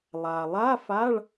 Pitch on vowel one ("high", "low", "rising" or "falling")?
low